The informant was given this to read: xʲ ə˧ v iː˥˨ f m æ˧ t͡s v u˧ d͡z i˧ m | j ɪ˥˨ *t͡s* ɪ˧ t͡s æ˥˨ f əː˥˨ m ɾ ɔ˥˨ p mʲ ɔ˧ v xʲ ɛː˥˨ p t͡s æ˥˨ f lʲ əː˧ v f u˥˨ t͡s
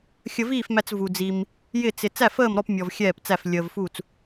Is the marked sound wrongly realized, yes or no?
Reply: no